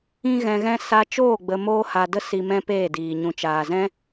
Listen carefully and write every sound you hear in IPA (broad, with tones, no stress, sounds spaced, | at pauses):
ĩ˦ ɣ ɛ̃˧ ɣ ɛ̃˦ s a˧ t͡ʃ oː˦˨ ɡ͡b ə˧ m oː˦ h a˧ d ə˦ s i˧ m ɛ̃˦ p eː˦˨ d iː˨ ɲ ũ˨ t͡ʃ aː˨ z ɛ̃˦